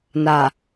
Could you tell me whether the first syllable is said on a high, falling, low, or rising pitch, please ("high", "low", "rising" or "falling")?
low